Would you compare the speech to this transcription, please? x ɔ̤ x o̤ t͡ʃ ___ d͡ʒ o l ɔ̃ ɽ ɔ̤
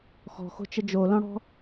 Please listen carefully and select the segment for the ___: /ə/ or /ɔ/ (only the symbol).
ə